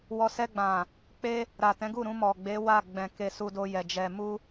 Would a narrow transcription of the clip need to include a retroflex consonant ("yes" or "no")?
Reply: no